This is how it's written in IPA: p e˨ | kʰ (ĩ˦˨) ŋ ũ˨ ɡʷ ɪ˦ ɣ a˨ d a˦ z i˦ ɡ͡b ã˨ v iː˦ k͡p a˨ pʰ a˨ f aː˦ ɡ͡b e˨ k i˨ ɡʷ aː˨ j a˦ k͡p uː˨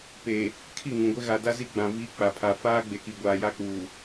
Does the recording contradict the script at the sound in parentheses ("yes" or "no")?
yes